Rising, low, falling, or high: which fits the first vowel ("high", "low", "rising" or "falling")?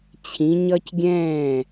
rising